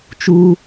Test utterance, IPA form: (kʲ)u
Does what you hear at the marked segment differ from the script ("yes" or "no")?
yes